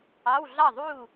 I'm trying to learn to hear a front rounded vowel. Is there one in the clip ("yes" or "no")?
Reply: no